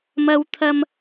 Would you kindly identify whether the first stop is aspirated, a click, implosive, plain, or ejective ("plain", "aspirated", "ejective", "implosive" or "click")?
aspirated